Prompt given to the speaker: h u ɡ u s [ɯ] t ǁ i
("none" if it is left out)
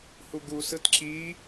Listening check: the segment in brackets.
ɯ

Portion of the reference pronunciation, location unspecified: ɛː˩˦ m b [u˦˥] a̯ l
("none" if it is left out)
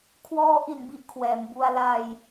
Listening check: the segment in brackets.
u˧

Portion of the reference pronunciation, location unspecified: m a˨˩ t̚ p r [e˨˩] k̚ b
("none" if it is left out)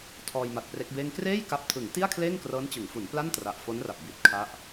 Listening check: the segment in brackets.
e˦˥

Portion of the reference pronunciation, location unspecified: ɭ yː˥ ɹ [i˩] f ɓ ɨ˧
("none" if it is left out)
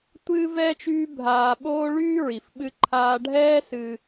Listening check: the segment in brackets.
i˩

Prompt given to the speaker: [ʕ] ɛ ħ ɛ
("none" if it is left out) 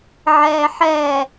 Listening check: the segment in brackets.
ʕ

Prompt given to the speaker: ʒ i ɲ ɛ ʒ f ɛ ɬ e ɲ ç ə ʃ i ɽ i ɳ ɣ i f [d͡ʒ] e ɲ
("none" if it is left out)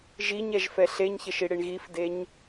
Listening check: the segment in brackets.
d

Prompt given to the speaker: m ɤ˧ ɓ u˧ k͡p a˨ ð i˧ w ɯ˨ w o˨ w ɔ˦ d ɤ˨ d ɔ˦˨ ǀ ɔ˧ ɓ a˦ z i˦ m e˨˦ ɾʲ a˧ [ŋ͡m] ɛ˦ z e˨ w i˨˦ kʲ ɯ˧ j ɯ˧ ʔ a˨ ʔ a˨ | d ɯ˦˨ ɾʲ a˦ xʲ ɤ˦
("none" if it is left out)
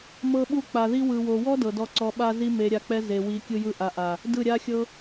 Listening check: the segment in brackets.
k͡p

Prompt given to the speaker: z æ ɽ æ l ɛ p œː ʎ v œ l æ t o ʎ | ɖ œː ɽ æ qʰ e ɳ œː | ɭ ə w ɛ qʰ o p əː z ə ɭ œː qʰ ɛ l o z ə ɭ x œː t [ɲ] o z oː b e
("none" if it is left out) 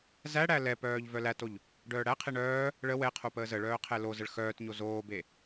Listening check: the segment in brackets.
ɲ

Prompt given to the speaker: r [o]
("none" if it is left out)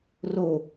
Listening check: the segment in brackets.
o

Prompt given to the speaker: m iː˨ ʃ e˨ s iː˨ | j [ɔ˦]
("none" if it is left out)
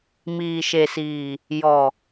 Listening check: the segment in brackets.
ɔ˨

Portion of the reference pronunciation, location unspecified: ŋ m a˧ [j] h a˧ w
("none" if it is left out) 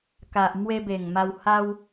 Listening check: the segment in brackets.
w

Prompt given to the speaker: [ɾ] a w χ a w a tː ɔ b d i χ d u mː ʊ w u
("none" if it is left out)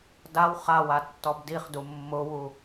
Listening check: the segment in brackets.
d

